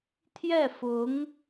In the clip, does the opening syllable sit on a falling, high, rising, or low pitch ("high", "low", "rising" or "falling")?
falling